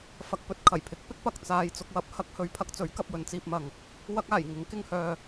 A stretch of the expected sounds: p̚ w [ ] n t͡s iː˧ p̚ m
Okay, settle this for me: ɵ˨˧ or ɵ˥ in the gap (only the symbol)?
ɵ˨˧